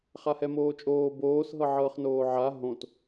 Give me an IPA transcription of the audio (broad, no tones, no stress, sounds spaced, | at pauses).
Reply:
χ a h ɛ m oː t͡ʃʼ oː b oː s ɦ ɤ ʕ ɤː χ n oː ʕ a ɦ õ t